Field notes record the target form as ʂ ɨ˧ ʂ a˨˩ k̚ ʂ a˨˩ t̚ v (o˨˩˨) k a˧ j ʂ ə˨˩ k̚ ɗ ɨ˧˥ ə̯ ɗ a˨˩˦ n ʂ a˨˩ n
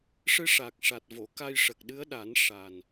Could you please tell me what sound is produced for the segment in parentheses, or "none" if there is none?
o˨˩˨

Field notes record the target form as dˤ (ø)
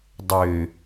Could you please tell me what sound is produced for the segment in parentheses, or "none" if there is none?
ø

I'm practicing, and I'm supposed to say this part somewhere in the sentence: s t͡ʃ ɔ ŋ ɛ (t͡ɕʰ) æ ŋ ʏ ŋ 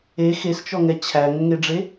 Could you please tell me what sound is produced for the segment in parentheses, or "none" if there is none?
t͡ɕʰ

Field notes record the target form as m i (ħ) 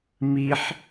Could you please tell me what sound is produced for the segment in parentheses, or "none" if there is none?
ħ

